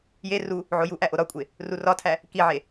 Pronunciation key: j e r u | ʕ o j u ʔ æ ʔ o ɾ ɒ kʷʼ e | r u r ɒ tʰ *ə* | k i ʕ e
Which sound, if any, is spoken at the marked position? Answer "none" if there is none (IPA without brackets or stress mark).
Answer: æ